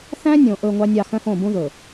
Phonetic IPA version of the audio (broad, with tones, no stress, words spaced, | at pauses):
θæ̃˦nʲõ˨ ʔɵ˨ ŋʷɑ˦nʲɑ˦˨ xœ̃˦xõ˦˨bũ˦ ðɵ˨